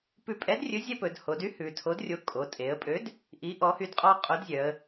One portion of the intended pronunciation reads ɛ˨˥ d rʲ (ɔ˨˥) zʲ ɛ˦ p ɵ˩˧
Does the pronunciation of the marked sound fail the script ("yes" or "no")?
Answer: yes